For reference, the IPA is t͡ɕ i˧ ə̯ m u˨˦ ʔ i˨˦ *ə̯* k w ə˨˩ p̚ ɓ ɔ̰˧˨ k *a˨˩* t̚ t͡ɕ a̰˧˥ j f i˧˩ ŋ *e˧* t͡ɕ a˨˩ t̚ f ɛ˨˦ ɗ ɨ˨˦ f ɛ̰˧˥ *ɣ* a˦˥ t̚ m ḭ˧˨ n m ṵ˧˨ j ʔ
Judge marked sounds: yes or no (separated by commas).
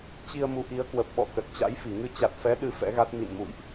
yes, no, no, yes